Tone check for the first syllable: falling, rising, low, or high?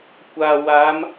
low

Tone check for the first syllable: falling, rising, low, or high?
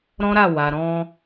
high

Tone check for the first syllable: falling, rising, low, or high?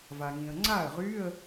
low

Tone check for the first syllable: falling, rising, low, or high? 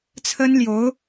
high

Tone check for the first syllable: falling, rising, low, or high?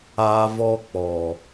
high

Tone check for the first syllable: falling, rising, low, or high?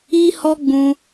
high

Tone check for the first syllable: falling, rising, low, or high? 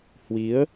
rising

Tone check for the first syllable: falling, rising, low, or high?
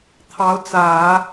rising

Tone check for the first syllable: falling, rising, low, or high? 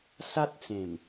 high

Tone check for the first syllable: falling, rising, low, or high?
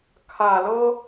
low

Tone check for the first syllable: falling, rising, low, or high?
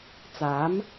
rising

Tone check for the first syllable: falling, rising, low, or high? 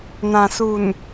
low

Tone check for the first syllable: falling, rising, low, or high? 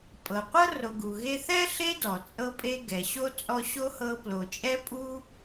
low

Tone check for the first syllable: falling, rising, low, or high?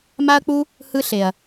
high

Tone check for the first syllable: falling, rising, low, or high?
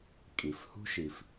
low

